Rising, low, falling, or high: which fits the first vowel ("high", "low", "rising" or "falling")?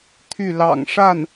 falling